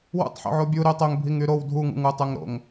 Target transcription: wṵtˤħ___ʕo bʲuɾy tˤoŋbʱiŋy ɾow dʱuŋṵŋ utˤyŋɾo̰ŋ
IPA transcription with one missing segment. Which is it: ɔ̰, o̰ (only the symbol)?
o̰